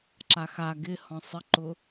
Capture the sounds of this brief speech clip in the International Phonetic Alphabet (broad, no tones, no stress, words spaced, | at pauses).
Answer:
ǁaxa ɡɪ hɔ̃sˤɪǃʊ